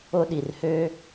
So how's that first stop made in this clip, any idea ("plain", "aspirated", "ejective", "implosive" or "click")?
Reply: implosive